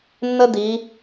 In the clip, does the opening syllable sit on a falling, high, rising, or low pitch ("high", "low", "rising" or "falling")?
high